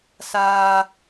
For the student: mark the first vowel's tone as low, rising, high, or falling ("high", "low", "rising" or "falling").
high